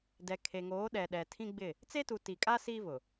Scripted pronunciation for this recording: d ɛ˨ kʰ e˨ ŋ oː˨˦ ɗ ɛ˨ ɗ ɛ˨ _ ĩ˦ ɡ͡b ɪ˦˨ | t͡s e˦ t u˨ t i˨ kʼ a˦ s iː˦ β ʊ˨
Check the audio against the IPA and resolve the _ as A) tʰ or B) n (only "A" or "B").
A